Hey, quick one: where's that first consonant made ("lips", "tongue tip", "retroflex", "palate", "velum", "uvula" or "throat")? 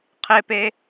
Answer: uvula